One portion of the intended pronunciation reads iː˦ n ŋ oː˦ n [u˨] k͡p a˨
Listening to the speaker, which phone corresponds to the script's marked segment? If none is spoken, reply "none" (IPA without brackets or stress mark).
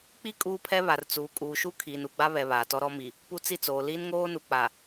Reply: u˨